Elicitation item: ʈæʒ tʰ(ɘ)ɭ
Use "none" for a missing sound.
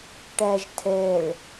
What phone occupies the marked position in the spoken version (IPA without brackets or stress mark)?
ɛ